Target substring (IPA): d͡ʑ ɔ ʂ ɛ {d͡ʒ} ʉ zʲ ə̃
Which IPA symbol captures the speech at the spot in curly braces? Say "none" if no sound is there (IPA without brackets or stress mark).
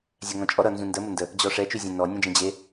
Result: t͡ʃ